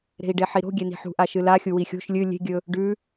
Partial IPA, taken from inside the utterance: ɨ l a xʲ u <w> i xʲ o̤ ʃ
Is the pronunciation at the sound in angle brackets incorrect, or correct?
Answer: correct